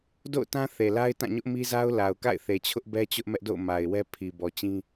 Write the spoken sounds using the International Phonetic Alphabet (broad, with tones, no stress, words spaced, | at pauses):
do̰˦˨ʊ̯tã˦ θe˨la˦ɪ̯tã˦˨ɲʊ˦ʔ mi˦za˦ʊ̯ la˨ʊ̯ka̰˦˨ɪ̯ θe˨t͡ɕʰʊ˦ʔbɛ˦t͡ɕʊ˦ʔ mɛ˦ʔdo̰˦˨ʊ̯ ma˨ɪ̯wɛ˦ pʰi˨ bɔ˨t͡ɕĩ˦